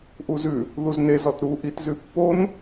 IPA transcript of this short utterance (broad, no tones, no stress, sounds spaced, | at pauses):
ʔ u z ʉ | ð u z n e z ɔ t ɾ u ʔ i t z ʉ pː o n